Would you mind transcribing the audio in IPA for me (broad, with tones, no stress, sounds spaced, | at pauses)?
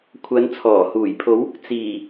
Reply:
kʷʰ ɐ˨˧ n t͡sʰ ɔː˨˩ h uː˨˩ j pʰ o˨˧ w | t͡s iː˨˩